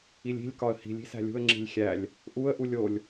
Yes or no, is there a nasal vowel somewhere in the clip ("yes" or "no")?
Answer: no